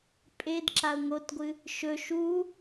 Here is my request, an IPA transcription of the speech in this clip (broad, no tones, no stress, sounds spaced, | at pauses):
pʼ e d ǁ a ʊ̯ ŋ o t ɡʷ ɨ | ʃ ɵ ʃ u